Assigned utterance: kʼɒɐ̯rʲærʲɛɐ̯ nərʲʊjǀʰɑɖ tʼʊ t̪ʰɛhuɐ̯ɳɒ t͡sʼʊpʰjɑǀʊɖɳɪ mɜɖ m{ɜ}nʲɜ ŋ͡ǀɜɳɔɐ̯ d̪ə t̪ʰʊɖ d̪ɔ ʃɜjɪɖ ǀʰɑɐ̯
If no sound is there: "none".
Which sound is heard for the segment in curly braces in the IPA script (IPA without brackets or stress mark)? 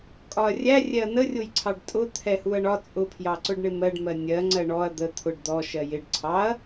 ɜ